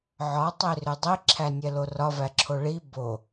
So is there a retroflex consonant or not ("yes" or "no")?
yes